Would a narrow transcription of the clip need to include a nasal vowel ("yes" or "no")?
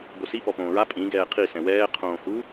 yes